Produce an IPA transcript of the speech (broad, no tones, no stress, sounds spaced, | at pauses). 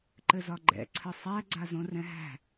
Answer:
ǃ ɘ z ɒ ɡ͡ǃ ɛ̰ ǀʰ ɘ sˤ æ ɡ͡ǀ a z õ r ɛ̃ ɦ æ̤